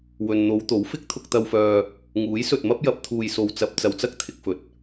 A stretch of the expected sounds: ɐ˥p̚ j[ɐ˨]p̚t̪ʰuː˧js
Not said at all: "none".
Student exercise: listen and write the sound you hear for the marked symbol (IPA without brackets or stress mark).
ɐ˨˥